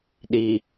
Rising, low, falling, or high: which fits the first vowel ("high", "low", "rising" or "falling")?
low